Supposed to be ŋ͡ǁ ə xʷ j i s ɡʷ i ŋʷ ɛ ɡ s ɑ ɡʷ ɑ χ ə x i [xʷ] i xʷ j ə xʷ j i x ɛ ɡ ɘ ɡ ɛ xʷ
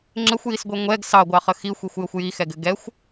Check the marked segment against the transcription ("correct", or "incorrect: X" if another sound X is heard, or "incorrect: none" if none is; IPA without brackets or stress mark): correct